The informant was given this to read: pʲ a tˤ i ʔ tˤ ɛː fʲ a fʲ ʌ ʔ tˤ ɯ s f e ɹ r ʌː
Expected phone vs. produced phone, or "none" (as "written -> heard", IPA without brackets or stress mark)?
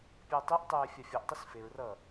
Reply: none